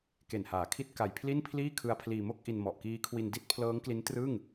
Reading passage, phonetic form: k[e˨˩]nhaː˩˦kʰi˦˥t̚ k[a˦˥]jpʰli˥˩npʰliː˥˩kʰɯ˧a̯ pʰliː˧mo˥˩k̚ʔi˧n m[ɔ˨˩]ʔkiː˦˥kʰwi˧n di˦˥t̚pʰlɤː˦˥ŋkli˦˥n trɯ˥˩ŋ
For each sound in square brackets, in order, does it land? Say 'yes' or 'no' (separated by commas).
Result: yes, no, yes